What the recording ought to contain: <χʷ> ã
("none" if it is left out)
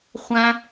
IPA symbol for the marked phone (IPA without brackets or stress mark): χʷ